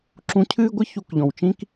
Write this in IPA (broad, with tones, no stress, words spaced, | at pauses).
ǁũ˧cʰɨː˦ɡʷɨ˦ çu˧kʎɔ̃˨wt͡ʃĩ˦k